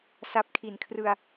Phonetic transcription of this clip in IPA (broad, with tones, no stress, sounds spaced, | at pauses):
s a˦˥ p̚ kʰ i˨˩ n kʰ r ɯ˧ a̯